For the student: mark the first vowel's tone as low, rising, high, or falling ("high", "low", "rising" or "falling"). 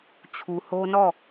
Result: low